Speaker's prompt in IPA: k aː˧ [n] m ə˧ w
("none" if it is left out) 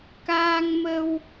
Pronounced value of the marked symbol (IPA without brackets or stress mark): ŋ